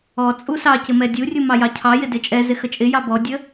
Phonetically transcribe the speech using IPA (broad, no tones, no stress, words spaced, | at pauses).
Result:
ɔt͡sʼu sɑcɪ mɛdʲurʲu mɑjɑcʰɑjɪ dɪt͡ʃʼɛzɪ xət͡ʃʼɪjɑ bɔdʲə